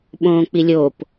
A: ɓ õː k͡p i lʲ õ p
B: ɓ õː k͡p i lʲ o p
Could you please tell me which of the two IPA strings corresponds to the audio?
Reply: B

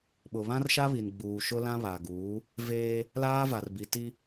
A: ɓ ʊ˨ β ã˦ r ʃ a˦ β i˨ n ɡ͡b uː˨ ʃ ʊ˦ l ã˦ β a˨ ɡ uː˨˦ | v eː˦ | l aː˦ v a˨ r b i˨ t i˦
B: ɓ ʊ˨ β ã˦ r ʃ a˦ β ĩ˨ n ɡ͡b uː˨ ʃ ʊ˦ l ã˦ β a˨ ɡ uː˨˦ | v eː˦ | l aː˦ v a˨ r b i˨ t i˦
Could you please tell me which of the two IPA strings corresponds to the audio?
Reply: A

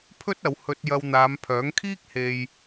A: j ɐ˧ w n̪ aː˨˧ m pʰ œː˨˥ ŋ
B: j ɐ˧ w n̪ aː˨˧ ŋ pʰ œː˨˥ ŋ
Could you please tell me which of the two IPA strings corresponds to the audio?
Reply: A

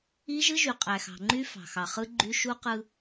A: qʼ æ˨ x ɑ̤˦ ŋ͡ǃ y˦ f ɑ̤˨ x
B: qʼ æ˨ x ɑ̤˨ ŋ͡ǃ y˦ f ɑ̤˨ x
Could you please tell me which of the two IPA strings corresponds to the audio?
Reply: B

